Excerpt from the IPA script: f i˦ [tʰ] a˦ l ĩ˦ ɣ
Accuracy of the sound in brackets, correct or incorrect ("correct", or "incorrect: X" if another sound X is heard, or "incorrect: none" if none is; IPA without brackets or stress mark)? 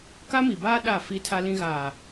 correct